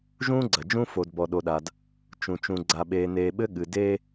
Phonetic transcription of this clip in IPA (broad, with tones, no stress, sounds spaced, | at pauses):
ʒ ũː˦ ɡ͡ǀ ɐ˨ d͡ʒ ũ˦ f o˨ d b ɔ˨ ɗ o˨ ɗ a˨ d | t͡ʃ ũ˨ t͡ʃ ũ˨ ɡ͡ǀ a˨ ɓ eː˨ n eː˨ ɓ ɘ˦ ɠ ɨ˨ d eː˦